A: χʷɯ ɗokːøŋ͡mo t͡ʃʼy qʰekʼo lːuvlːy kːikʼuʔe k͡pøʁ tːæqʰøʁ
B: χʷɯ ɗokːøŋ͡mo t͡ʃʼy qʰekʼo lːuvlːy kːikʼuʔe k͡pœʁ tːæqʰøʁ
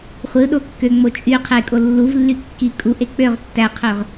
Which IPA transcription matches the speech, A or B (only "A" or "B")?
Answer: A